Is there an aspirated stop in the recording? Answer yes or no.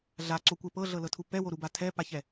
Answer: yes